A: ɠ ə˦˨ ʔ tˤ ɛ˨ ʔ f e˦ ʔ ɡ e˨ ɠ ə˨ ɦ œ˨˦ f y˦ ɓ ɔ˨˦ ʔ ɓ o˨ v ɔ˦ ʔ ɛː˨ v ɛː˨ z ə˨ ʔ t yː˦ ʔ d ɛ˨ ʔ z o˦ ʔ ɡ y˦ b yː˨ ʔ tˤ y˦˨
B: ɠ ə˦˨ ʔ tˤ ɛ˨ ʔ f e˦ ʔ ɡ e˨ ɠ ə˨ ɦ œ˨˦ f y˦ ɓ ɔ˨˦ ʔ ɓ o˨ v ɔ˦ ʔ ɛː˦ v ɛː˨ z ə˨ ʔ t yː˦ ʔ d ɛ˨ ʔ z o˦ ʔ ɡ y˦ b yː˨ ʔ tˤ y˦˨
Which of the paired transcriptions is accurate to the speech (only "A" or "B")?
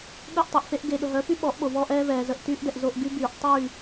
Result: B